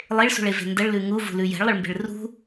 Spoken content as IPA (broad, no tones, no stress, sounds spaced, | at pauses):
lˠ e ɭ s ṳ ɭ e v e̤ n d ə ɭ l ʉ ŋ u v ṳ l ʉ j ɛ̤ ɭ lˠ ə ɭ m b e̤ ɭ r ṳ